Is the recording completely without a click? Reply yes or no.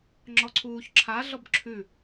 no